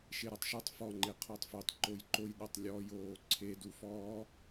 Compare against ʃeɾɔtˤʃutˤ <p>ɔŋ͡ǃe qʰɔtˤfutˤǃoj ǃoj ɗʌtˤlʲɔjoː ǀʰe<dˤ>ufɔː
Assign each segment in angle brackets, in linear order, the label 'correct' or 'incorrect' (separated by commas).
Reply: incorrect, incorrect